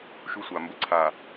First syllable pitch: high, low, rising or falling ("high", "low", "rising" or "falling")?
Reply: high